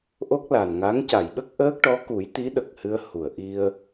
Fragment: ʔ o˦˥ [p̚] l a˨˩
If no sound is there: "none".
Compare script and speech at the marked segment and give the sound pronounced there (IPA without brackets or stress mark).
k̚